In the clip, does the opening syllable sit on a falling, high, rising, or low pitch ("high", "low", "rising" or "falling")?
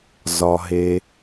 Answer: low